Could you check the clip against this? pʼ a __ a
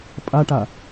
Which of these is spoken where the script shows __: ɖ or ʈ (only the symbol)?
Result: ʈ